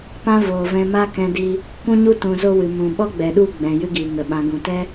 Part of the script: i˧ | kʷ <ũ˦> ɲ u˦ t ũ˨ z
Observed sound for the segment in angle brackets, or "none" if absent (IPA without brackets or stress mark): ũ˦